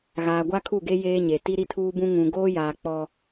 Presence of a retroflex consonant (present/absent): absent